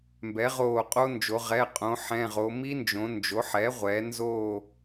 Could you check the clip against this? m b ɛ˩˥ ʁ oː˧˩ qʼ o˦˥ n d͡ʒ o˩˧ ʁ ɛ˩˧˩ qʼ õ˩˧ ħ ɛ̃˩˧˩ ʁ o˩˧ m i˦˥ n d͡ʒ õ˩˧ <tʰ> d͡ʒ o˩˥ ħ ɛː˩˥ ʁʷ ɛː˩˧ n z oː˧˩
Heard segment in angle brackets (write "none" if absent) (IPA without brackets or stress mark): n